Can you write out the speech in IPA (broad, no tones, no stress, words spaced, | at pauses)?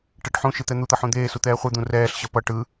ʈɛʈħũʃɯ t̪ɛn̪ut̪ʌ ħũd̪eːsu t̪ɛːχʷɯd̪ũ rɛːɬɕʌ pʌ ʈɯ